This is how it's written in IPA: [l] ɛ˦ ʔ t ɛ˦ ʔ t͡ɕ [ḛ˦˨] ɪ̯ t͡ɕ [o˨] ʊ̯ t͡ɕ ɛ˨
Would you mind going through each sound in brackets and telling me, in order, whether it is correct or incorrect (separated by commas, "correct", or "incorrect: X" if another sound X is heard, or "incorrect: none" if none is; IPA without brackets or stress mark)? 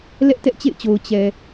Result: correct, correct, correct